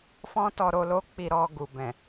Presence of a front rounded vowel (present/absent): absent